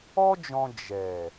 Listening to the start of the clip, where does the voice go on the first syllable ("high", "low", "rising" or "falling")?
high